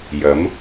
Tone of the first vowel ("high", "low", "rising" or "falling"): rising